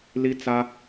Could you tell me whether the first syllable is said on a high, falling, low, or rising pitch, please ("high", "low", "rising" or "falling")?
high